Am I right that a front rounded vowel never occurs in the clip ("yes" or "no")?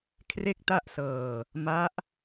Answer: yes